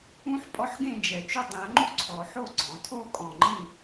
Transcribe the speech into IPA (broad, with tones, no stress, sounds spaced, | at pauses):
ũ˦ ħ pʼ ɔ˦ ħ ɡ ẽ˥˨ d͡ʒ ɛ˨˩˦ t͡ʃ u˥˨ dˤ ĩ˨˩˦ ɐ̯ ŋ͡ǃ u˦ ǀʰ ɔ˨˩˦ ħ o˥˨ ɡ͡ǀ ɔ̃˨˩˦ tʰ o˥˨ kʼ ɔ̃˧˩ ŋ͡ǃ ĩ˥˨